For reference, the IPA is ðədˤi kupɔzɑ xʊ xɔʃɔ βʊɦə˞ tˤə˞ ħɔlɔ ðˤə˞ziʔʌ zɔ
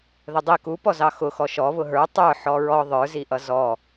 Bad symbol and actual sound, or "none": l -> ɹ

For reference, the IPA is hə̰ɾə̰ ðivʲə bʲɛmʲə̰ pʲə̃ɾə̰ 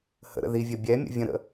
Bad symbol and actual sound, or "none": pʲ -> vʲ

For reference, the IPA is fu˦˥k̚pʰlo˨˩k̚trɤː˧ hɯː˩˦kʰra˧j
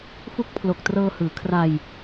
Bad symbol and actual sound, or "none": none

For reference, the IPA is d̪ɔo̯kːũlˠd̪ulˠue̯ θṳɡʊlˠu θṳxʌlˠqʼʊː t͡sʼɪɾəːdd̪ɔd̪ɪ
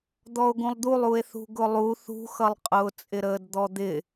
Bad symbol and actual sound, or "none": kː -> ɡ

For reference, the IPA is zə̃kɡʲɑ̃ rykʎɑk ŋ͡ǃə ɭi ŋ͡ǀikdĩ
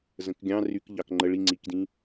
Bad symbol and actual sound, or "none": none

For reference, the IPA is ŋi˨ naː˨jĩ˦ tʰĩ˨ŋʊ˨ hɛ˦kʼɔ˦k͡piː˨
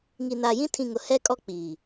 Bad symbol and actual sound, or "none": none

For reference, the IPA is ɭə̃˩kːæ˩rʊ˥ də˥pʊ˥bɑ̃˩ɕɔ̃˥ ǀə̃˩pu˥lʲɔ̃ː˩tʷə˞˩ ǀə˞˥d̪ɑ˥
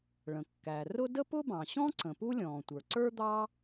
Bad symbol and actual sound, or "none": none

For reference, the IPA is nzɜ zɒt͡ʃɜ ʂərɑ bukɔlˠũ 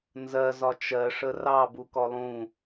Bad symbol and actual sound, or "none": none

